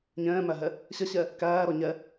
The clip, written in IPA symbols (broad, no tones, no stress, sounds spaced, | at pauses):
ɲ ɛ̃ː m æ ɦ ɛ | ɕ ɐ ɕ ɛ | k æː ɾ ɔ ɲ ɛ